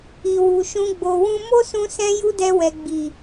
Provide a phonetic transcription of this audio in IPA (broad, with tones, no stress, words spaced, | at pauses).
i˨wu˨ʃũ˧ ɡ͡bo˨wũ˧ mo˦sũ˧ sɛ̃˦ju˦dɛ˧wɛ˨ ɡ͡bi˨